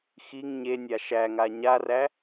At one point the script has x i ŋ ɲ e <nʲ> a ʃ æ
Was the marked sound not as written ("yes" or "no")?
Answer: no